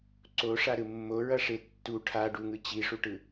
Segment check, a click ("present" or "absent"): present